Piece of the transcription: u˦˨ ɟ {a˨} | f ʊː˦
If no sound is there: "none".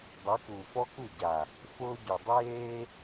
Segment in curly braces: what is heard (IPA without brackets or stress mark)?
a˨